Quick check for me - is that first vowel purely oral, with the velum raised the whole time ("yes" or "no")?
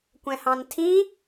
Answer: no